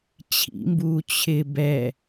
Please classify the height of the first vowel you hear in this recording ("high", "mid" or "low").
high